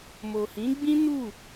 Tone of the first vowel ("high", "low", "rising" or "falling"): low